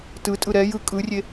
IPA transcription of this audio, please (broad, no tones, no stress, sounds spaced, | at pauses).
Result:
t ɯ tʼ ɯ ɾ ɛ j ɯ kʼ ɯ rʲ e